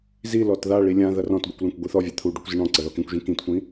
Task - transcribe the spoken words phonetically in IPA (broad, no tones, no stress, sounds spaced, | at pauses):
z i l ɔ t ð a ɭ i lʲ ã ð ɐ r ɔ̃ t ɡʷ i kʷ l ã kʷ ɡʷ i θ ɔ vʲ a t̪ʰ u ɖ u kʷ z i ɳ ɔ̃ ǀ ɐ ð ɔ k ĩ kʷ ʒ ĩ k ĩ t kʷ ĩ